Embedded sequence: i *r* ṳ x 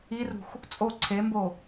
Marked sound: correct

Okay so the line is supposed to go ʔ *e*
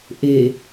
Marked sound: correct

